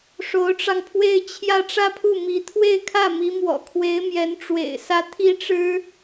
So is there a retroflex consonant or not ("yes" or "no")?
yes